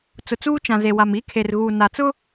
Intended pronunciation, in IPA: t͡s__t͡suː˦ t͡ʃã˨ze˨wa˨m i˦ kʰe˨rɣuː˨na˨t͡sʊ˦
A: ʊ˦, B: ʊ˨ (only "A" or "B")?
B